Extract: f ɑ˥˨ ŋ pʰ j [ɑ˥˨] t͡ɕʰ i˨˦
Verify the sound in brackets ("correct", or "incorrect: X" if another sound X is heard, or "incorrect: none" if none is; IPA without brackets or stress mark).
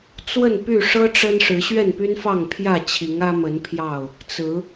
incorrect: ä˥˨